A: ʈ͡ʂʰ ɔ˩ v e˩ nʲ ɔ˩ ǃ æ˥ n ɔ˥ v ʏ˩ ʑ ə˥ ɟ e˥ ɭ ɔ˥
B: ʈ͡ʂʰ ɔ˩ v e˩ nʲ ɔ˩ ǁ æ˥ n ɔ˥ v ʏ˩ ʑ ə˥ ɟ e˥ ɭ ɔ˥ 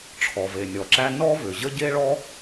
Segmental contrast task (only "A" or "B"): B